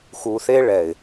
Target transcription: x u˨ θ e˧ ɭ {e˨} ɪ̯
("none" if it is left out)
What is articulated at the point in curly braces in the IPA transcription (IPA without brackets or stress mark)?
ɛ˨